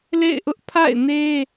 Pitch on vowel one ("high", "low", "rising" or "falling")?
falling